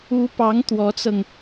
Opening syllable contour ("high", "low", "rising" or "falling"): rising